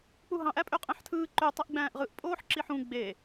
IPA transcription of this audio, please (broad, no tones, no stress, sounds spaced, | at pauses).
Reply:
k͡p u ɦ ɑ̃ ʔ æ pʼ ø qʼ æ̃ ħ tʰ ɯː ǃ ø tˤ i ʔ ɡ͡b æ̃ː ʔ ʁ ɯ ʔ pʼ oː ħ ǁ i ħ ũ ɡ͡b e